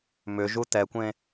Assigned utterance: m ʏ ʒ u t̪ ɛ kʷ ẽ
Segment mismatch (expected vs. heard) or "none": none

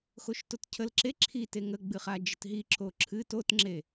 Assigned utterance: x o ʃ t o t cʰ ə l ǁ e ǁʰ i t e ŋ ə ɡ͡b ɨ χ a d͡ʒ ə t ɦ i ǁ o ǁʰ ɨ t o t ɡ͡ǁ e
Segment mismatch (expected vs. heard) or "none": ɡ͡ǁ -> ŋ͡ǁ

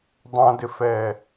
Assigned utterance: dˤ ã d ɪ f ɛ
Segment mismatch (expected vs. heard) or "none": none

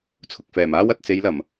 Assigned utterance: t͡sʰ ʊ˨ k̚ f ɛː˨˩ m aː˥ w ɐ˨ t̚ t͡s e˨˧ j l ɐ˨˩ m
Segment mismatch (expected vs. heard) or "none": none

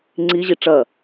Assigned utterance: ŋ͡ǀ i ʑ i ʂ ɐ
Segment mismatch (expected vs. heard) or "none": ʂ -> ʈ͡ʂ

